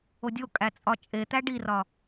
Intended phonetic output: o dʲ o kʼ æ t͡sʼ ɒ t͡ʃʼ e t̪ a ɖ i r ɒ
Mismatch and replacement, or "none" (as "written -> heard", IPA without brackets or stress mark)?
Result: a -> æ